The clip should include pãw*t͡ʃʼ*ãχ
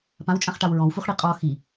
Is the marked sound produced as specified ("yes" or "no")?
yes